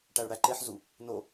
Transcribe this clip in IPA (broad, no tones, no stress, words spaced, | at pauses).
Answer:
ʈæɭɽæǃeħzu | no